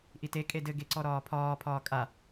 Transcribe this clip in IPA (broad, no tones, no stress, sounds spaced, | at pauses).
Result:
ʔ i t e kʼ e d ɘ ɡ e ǀ ɔ ɾ ɒː pʰ ɒː pʰ ɒː kʼ a